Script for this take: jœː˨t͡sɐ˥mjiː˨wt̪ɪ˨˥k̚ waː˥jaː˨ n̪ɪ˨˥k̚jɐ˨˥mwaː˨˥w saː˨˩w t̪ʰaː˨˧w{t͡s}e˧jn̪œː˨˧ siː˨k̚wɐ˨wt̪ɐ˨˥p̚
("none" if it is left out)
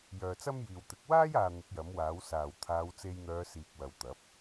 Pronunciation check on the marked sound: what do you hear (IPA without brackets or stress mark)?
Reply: t͡s